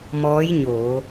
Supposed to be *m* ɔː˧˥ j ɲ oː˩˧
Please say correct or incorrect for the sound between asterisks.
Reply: correct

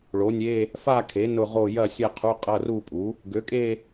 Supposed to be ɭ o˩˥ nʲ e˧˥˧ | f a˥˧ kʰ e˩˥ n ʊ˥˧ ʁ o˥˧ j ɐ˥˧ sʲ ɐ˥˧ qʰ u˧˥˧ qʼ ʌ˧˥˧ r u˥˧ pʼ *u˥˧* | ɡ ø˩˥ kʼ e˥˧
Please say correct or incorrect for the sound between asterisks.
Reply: incorrect: u˩˥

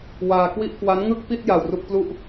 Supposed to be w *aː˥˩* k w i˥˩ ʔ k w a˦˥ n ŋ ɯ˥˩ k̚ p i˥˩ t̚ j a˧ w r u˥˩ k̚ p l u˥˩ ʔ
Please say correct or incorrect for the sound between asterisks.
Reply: incorrect: aː˧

